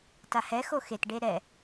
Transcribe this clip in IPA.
t a h ɛ x o x e t ɖ e ɾ ɛ

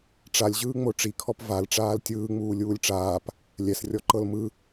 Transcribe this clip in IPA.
ʈ͡ʂ a lʲ ʑ ɯː ŋ͡m o ʈ͡ʂ i kʰ ɔ p v a l ʈ͡ʂ aː l tʲ ɯː ŋ͡m uː lʲ uː lʲ ʈ͡ʂ aː p | lʲ ɛ s rʲ ɔ ǃ ɤ l m ɯ

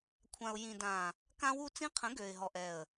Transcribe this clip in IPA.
kʷʰ ã˨ ʊ̯ j ĩ˨ d ã˨ | k ã˦ w u˦ t͡s ĩ˦ qʰ ə̃˨˦ ɡ ø˨ ɪ̯ ɦ ɔ˨ ʔ ɛ˨ ə̯

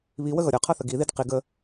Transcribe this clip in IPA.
β i w ə ɣ ʌ ɾʲ ʌ qʰ ʌ θ ə ɡ i ð i d q i ɡ ə

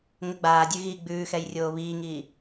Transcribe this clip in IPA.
ŋ ə ɡ͡b aː dʲ ʉ ɣ i ɡ͡b ʉː x ɛ j rʲ oː β iː ŋ iː

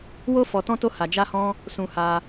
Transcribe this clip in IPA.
w o˦ f ɔ˧ t ɔ̃˦ t o˦ h a˧ d͡ʒ a˦ h ɔ̃˦ | s ũ˧ h a˧

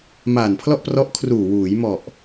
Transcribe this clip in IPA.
m aː˨˩ n pʰ l ɔ˥˩ ʔ p r ɔ˦˥ ʔ kʰ r uː˨˩ w uː˩˦ j m ɔ˨˩ ʔ

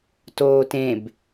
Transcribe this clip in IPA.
t oː t ẽ b

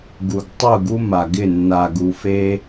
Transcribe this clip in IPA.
ɡ u˨ ɡ tˤ u˦˨ ɡ u˦ m a˨ ɡ ɪ˦˨ nː a˨ ɡ u˨ f e˦

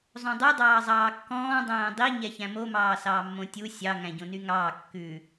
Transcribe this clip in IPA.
zˤ õ dˤ y dˤ ɑː zˤ ɑː kː ɔ̃ː dˤ æ̃ː dˤ i ɲ ɛ ç æ̃ m o m ɑː s ɑː mː õ tʲ u sʲ ɑ ŋ æ̃ ɟ õ n y ŋ ɑː kː ʉ

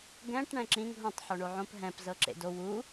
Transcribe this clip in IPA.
ɡ ɛ̃ ʈ ɳ ɛ̃ ǁ ĩ ŋ ɦ õ tˤ ħ o ɳ o ʕ õ p ɦ ɛ̃ p z ɤ ǁ ḛ d o w u

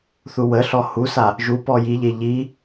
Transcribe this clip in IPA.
θ u w ə ɬ ɔ h u s a | ʒ u p ɔ j i ʎ e ʎ i

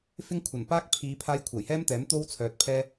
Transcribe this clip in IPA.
f ɪ˥ ŋ kʷʰ ɐ˨˩ n p aː˥ k̚ pʰ iː˨˧ pʰ aː˧ j kʷʰ ɐ˨˩ j h ɛː˥ m t̪ ɛː˨˥ m t̪ o˥ w t͡sʰ œː˨ t̚ pʰ ɛː˥

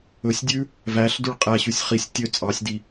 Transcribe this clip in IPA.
ɵ sʲ dʲ ʉ | v æ ɬ d ʉ ɭ qʼ æ ɕ ʉ sʲ χ i sʲ tʲ ø t͡sʼ ɑ sʲ d i

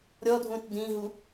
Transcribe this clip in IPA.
ɾʲ ɔ dʱ ũ t d ĩ ɦ u

